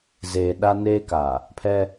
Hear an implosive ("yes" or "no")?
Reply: yes